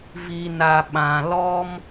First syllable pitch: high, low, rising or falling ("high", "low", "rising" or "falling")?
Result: low